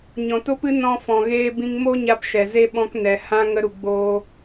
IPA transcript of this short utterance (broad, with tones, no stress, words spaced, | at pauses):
ɲɔ̃˨to˦pɨ˦ nɔ̃˧fɔ̃˨ ɣeː˧bĩ˧ŋmo˦ɲa˧p ʃɛ˨ze˦ ɓɔ̃˧knɛ˨ hã˦ ŋə˧ɾu˨ ɡ͡boː˦